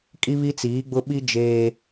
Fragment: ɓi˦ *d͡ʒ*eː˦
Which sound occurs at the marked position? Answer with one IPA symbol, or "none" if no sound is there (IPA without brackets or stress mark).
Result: d͡ʒ